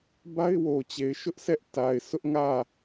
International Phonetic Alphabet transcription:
ba˦ɪ̯wo˨t͡ɕe˨ɪ̯ ʃʊ˦ʔsɛ˦ʔ ta˨ɪ̯sʊ˦ʔŋä˦˨

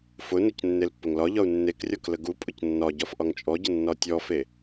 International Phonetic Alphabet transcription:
fʊnʊc nːelpːəŋlɒʎɒu̯ nːekrʲɒk ləɡupʼʊc nːɒ ɟɒfʔɒŋt͡ʃʼɔɟə nːɒtʲɔfe

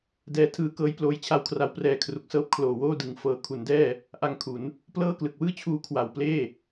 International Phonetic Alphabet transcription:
dɛː˧tʰɯː˧kɤː˦˥j ploː˦˥jt͡ɕʰa˧wkʰra˦˥w prɛː˧kʰru˨˩k̚sɤː˥˩p̚ kʰloː˨˩woː˥˩dɯ˨˩ŋ fɤː˩˦kʰu˩˦ndɛː˥˩ | ʔa˧ŋkʰu˩˦n | plɤː˥˩ klɯ˨˩k̚wɯː˥˩t͡ɕʰuː˧ kʰwa˨˩w pleː˥˩

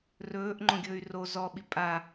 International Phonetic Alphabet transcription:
rɵːʔŋ͡ǃõɡʲɵːy̯ ro zɔɓi pʼa

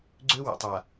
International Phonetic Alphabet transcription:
ɡ͡ǀø˦wə̰˨tˤa˨

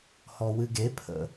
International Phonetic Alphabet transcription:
hɔwɨɡepʰə̰

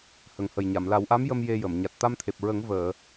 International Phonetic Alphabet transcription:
hə˨˩ŋhə˨˩jɲa˨˩˨m la˨˩˦wʔa˧˥mjə˧m je˧jə˨˩˨m ɲa˨˩t̚t̪a˧mt̪ʰe˨˩p̚ɹə˨˩˦ŋ vəː˨˩˨

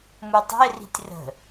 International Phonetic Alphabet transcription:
mutˤə̤ɪ̯ri̤tʲ rə̤

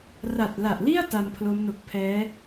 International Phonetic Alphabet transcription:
ra˨˩t̚la˨˩ʔli˥˩a̯ ta˧mpʰlo˦˥m no˨˩k̚ pʰɛː˦˥

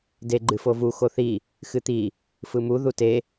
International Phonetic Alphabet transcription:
de ɡ͡ǃɨfovu xoθi | xɨt̪i | fɯmu ðute

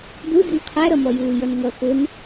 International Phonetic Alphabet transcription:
du dɪnqʰæɾʌmɔ juːjʌnŋʌ xʊn

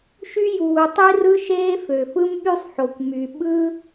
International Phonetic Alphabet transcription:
ʃy˥juː˩ tˤi˥rɯ˥ʃeː˥ fø˩fɯ˥mɓy˥sˤħo˩kʷ my˩ ɓɯ˥

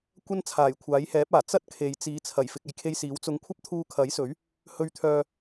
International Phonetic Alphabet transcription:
kʷɐ˥n t͡sʰaː˨˩jkʷʰaː˨˥jhɛː˨˥p̚aː˨˩ t͡sɐ˥t̚ kʰe˨jt͡siː˨˧ t͡sʰɐ˨˩j fɪ˨k̚ɐ˨jkʰe˧j siː˨˥wt͡sʊ˧ŋ kʷʰɐ˥p̚t̪ʰuː˧kʰɐ˨˥jsɵ˨˥ɥ | hɵ˧ɥt̪ʰœː˧

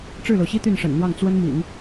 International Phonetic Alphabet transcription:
ʈ͡ʂɻ̩˥˩lo˩ʊ̯ɕi˥ t̪y˥˩nʂə̰˨˩nn̪wɑ˥˩ŋ t͡swə˥nmḭ˨˩˦ŋ

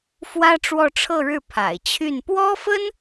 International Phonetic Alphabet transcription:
fwä˥ʈ͡ʂwɔ˥˧ʈ͡ʂʰɤ˥˧ɻɻ̩˥˩ pʰa̰˨˩ɪ̯t͡ɕʰy˥˩n pwɔ˥fə˥n

